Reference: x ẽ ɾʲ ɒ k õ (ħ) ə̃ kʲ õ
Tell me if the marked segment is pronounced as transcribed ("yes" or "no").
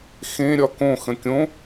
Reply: no